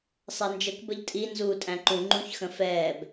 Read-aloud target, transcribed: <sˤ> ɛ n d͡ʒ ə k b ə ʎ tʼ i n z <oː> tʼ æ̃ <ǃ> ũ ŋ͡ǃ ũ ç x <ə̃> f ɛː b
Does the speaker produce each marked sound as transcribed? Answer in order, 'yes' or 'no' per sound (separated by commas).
yes, no, yes, yes